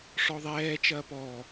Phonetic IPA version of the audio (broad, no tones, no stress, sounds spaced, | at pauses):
ʂ ɔ ðˤ ɛː t͡ʃ ɐː p ɔ